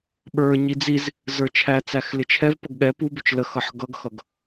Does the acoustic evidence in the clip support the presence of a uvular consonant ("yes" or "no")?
no